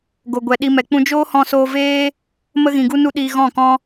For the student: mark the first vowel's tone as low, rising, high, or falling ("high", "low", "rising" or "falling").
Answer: low